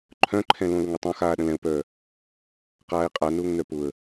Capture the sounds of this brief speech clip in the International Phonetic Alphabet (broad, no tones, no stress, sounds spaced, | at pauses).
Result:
ǃʰ œ̃ ǃʰ ɛ̃ l õ l ʊ ŋ ɪ tˤ õ x aː ɗ ə̃ l ɛ̃ ʊ̯ p œː | q aː ɪ̯ qʼ a n ʊː ŋ n œ p ʊ ə̯